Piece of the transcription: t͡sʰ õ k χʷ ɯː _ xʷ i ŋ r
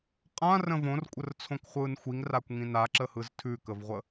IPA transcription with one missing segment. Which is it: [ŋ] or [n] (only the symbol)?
n